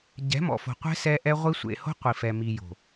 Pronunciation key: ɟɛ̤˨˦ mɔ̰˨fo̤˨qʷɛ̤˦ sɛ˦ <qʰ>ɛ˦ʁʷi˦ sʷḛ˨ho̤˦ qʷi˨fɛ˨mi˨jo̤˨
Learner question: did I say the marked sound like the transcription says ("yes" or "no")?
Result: no